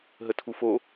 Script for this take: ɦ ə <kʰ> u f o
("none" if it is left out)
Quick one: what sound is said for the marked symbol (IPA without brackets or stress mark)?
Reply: tʰ